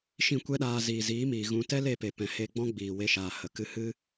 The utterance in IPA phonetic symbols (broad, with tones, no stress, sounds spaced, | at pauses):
ʃ ĩ˦˨ kʷ ɛ˦ ɗ aː˧ z iː˨ z iː˨˦ m iː˨ ɣ ũ˧ t ɛ˦ l e˦˨ p e˨ p ɛ̃˨ h e˧ ɡ͡b ɔ̃˦ ɡ͡b iː˨ w e˧ ʃ aː˨ h ə˨ k ɨ˧ h ɨ˦